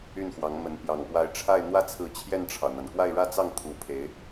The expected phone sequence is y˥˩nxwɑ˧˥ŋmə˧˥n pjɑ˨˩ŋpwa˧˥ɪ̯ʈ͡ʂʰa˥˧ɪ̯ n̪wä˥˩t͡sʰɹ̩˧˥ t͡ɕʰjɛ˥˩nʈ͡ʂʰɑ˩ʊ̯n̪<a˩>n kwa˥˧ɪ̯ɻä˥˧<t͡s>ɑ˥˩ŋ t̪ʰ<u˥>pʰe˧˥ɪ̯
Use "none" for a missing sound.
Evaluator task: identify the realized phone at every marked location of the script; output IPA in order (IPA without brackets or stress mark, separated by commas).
a˩, t͡s, u˧˥